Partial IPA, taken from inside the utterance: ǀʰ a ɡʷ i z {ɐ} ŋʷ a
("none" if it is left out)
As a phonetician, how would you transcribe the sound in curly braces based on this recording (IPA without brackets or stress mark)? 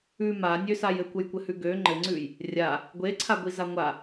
a